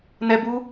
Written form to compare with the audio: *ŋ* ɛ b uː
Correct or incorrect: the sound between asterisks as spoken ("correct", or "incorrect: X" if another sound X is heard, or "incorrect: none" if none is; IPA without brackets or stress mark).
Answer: incorrect: n